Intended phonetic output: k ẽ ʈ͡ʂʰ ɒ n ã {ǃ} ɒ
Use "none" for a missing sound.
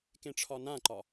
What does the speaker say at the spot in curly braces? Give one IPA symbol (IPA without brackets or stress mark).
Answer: ǃ